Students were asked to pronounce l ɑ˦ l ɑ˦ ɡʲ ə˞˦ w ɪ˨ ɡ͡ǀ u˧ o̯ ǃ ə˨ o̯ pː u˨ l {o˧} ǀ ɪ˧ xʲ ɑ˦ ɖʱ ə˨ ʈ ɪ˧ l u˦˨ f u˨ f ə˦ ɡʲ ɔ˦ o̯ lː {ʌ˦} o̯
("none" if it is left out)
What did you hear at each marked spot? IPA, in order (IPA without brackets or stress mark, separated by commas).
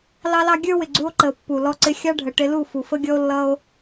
ɔ˧, ʌ˦